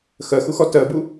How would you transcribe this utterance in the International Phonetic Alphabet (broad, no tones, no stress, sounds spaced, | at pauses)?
x ɜ x u x ɔ t ɜ b u